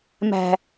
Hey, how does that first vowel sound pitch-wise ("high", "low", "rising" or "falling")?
low